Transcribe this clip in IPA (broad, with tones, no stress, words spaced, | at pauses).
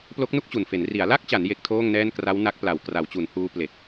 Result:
plo˦˥k̚nu˥˩k̚t͡ɕu˨˩nfe˩˦n ri˩˦a̯la˥˩k̚t͡ɕa˩˦n je˦˥k̚tʰoː˥˩ŋnɛː˥˩n kra˦˥wna˦˥k̚pla˨˩w kra˩˦wt͡ɕu˩˦nhuː˦˥ ple˨˩k̚